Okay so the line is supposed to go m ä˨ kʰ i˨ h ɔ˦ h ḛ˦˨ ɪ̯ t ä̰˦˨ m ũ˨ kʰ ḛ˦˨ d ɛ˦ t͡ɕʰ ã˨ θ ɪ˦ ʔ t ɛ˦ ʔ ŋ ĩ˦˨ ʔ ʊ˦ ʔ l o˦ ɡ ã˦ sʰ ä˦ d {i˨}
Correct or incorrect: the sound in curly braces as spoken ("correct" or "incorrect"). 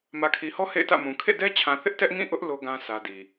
correct